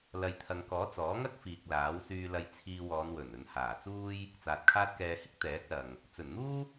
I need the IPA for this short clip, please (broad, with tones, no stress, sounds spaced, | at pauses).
l ɐ˨ j t̪ʰ ɐ˨ ŋ k ɔː˨˥ t͡s ɔː˨˥ ŋ ɐ˥ k̚ f iː˨ k̚ l aː˨˥ w s yː˧ l ɐ˧ j t͡sʰ iː˧ w ɔː˨˧ n w ɵ˨˩ n ɵ˨ n h aː˨˩ t͡s uː˥ j | t͡s aː˨ t̚ kʰ aː˥ t̚ k ɛː˧ h ɪ˥ k̚ t̪ ɛː˨˥ k̚ l ɐ˨ ŋ | t͡s ɵ˨˩ n n̪ uː˥